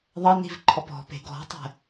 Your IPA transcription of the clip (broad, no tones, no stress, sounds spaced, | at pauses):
ðˤ ɐ n i̤ v ǃʰ ɔ p ɔ̤ p e̤ ɡ ɔ̤ tˤ ɛ̤